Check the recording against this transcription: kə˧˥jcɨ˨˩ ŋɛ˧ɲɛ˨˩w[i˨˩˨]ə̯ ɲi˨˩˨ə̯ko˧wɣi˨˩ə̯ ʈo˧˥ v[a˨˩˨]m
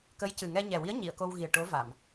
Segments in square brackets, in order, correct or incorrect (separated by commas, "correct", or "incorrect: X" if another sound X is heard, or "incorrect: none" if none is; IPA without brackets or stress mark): incorrect: i˧˥, correct